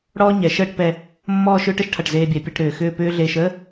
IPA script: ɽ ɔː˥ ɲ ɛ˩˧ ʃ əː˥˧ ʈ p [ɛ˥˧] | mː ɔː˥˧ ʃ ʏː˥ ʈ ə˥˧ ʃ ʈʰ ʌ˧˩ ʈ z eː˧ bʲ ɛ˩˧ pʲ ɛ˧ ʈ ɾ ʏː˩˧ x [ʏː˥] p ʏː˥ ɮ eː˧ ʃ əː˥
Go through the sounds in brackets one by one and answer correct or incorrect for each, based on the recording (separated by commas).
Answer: incorrect, incorrect